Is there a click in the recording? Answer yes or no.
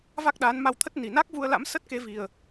no